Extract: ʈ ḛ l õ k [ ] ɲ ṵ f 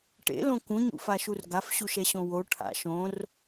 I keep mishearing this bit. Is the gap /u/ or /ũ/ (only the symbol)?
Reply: ũ